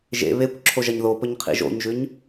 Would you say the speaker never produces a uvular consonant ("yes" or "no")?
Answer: no